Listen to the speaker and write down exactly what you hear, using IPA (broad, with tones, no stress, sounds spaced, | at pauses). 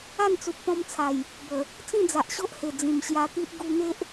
a˥˧ n t͡s u˨ p̚ t̪ ɔ̃˧ m t͡sʰ a˨˩ j | b ə˨˩ | t͡s ĩ˥˧ d͡z a˨ ʔ ɕ o˦ ʔ h e˨˩ d͡z ĩ˨˩ m ɕ j a˧ t̪ i˦ ʔ ɡ u˧ n̪ e˦ ʔ